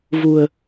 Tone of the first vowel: low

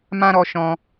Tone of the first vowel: high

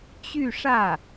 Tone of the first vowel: falling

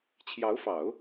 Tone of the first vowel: rising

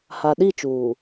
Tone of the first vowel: low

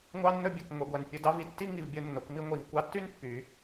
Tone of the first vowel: high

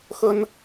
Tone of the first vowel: high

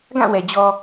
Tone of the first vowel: falling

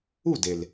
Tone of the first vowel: falling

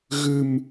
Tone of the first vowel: low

